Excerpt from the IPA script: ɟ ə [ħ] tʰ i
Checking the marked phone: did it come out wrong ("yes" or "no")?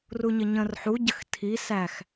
yes